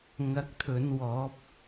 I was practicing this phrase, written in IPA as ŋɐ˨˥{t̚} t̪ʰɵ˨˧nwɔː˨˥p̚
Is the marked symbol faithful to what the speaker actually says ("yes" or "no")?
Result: no